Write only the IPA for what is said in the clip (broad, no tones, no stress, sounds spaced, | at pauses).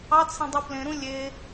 ɑ t͡sʰ ẽ dˤ u p l ẽ ɾ ũ lʲ e